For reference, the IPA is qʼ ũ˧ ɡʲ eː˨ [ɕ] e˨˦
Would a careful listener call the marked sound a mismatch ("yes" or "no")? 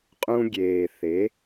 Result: yes